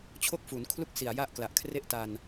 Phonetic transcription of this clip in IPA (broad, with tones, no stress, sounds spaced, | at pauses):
t͡ɕʰ o˥˩ k̚ f u˩˦ n kʰ l u˥˩ k̚ s i˨˩ a̯ j a˥˩ ʔ k l a˨˩ ʔ kʰ r e˥˩ ʔ t a˧ n